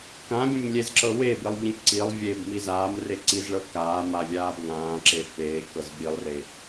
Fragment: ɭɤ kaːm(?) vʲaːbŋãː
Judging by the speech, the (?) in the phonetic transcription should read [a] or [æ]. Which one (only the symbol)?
a